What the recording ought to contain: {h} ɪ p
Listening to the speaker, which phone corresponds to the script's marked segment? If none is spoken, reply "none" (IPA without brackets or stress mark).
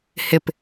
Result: h